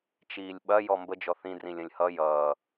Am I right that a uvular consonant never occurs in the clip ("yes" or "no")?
yes